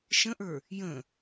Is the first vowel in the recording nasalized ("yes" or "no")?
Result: yes